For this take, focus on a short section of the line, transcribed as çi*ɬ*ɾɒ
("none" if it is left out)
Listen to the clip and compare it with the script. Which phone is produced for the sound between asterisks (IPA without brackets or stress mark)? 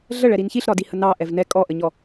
ɬ